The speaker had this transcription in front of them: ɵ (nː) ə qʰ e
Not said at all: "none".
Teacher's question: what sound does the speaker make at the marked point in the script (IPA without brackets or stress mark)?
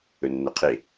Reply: nː